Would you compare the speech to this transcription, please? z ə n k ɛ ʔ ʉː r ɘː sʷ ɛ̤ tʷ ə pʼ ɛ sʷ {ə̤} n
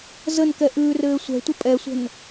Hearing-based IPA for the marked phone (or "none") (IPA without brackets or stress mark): ə̤